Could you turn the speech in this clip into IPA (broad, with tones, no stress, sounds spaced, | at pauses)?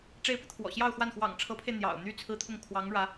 ʈ͡ʂ e˧˥ ɪ̯ p ɤ˧ t̪ʰ w ɔ̰˨˩ ɕ j ɑ˥˧ ʊ̯ x w a˥˩ n x w ɑ̰˨˩ ŋ ʈ͡ʂʰ ɤ˧˥ pʰ e˧ ɪ̯ n̪ j ɑ̰˨˩ ʊ̯ n̪ y˥˩ t͡sʰ ɹ̩˥ t̪ʰ ʊ˥˩ ŋ kʰ w ɑ˧˥ ŋ ɻ ä˧˥